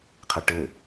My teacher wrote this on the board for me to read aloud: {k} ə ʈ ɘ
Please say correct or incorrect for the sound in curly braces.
incorrect